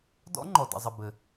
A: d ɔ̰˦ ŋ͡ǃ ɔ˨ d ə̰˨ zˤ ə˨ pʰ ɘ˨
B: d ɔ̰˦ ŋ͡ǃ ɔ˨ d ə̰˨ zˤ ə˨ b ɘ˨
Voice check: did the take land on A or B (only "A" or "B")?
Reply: B